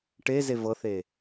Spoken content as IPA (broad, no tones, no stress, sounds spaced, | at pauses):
ʈ e z e v ɤ θ e